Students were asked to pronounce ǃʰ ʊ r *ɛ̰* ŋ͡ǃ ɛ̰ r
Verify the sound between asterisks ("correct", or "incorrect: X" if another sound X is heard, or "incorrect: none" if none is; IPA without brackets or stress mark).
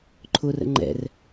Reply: incorrect: ə̰